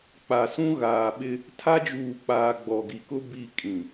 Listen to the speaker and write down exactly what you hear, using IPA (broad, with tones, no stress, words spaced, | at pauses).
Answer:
k͡pa˨sũ˦ɣaː˨ɓɪ˦ | tʰa˦d͡ʒuː˨k͡paː˨ ɡ͡bɔ˨ɡi˨kʊ˦ bi˦˨kʼĩ˨